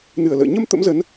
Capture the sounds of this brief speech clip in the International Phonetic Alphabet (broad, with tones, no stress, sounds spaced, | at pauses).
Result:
n ɨ˨˩ ə̯ l ə̰ː˧˨ ɲ ə˧ m t̪ ə̰˧˥ m z ə˨˦ n